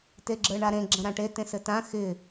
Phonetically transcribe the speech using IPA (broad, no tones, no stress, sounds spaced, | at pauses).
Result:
t e ɡ͡ǁ ə˞ ɳ a ɾ ẽ ɡ͡ǁ ə̃ ɾ ã ʈ e t ẽ s ɘ t ã x ɪ